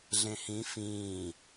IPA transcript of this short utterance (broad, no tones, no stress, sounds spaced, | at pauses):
ɮ ẽ h ĩ f ĩː